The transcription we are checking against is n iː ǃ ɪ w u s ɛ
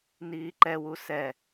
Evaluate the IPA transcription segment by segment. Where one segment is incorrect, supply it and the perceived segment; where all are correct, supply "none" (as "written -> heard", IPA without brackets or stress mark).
ɪ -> ɛ